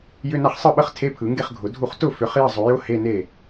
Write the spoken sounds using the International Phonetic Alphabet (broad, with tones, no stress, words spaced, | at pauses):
jʏ˧˥˧na˥˩χsˤɯ˥˩ɓə˥˩χ tʰe˧˥˧pʰɯ˨˩˦ŋɡe˥˩χɡʱʊ˨˩˦ dʱu˥˩χ tʊ˥˩fʏ˨˩˦χ jə˥˩zˤʊ˨˩˦jʊ˧˥˧ he˧˥˧ne˥˩